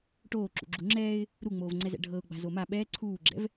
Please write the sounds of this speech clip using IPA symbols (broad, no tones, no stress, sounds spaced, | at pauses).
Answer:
ʈ oː ǁ ṵ ɡ͡ǁ u ŋ͡ǁ ɛː ɪ̯ | ɾ u ŋ͡m oː v ŋ͡ǀ ɛ z ɛ̰ ɖʱ ɤ ʊ̯ ɡ͡b a̤ z o m a ɓ ɛː ǀʰ uː ɡ͡ǁ ɛ̰ v